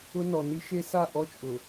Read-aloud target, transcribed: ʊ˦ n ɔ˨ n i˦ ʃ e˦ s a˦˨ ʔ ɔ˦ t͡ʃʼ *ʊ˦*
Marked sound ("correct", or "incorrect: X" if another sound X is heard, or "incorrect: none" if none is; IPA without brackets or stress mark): incorrect: ʊ˨